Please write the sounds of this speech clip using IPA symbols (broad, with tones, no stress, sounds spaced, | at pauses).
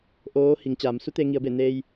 ʔ oː˧˥ h i˩˧ ŋ t͡ɕ aː˩˧ m s u˧˥ t̪ e˧ ŋ i˩˧ ə̯ b e˧˩ n eː˧ j